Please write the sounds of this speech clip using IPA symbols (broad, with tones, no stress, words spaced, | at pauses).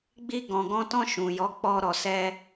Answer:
ɡ͡bi˧ɡɔ̃˨ɡɔ̃˧tɔ̃˧ ʃũ˨jɔ˨˦k͡pɔ˧ɾɔ˨ sɛ˧